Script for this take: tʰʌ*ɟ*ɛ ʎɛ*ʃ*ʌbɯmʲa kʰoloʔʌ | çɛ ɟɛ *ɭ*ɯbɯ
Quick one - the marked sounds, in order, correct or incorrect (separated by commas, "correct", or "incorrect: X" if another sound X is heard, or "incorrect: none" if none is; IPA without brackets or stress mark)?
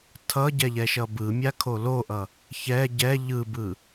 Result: correct, correct, incorrect: ʎ